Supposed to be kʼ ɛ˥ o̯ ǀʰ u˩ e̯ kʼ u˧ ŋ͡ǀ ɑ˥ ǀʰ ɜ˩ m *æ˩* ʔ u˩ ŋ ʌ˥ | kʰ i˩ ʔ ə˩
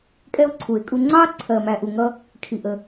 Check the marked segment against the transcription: correct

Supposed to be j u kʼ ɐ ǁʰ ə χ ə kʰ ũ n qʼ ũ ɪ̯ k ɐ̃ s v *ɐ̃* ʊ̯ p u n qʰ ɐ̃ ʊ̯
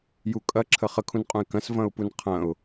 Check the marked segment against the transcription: correct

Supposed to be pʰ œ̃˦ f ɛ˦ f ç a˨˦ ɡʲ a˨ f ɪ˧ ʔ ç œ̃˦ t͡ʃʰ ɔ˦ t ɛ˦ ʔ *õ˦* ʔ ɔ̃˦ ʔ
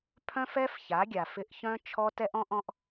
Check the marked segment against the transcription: incorrect: ɔ̃˦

